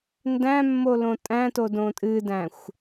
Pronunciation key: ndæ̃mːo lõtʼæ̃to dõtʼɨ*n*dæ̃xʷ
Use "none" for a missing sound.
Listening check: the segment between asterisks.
none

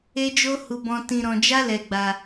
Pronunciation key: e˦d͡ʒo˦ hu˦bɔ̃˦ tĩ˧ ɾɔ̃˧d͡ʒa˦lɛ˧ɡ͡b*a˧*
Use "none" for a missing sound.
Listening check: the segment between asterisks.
a˧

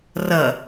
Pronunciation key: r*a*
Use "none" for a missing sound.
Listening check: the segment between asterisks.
ʌ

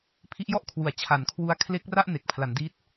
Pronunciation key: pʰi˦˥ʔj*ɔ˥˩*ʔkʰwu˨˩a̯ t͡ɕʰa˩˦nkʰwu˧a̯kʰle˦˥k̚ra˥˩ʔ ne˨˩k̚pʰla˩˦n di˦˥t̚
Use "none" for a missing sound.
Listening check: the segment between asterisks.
ɔ˥˩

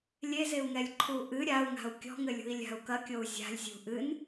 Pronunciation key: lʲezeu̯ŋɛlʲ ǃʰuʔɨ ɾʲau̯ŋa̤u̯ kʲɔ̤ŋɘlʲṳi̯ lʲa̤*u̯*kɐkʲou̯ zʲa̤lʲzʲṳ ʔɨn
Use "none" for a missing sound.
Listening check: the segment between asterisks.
u̯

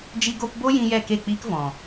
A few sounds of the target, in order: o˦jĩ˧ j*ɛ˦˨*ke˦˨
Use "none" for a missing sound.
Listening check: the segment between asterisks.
ɛ˦˨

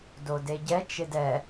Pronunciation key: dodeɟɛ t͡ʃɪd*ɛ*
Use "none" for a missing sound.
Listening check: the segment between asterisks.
ɛ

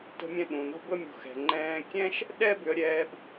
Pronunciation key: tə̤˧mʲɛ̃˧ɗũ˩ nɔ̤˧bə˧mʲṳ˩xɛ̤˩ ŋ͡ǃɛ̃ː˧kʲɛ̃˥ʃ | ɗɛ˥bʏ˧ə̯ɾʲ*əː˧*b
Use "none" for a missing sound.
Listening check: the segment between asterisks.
ɛː˧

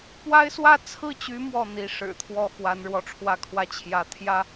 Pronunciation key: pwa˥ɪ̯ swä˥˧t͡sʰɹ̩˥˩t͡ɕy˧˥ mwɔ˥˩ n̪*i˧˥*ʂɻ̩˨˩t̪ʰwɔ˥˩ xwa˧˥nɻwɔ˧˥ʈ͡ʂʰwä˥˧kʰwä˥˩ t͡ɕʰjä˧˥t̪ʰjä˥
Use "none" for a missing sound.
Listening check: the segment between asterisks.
i˧˥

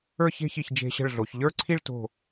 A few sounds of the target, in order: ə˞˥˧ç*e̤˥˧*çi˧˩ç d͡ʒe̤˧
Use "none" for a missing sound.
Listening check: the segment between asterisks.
e̤˥˧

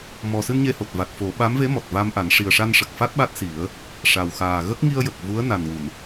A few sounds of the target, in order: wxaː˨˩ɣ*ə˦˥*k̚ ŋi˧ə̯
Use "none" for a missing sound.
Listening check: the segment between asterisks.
ə˦˥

